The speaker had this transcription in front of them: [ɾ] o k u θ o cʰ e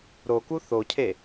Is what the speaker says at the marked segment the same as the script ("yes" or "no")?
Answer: yes